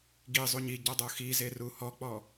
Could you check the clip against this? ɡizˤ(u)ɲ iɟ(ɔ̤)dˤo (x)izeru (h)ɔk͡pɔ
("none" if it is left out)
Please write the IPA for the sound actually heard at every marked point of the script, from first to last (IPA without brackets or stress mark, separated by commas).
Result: u, ɔ, x, h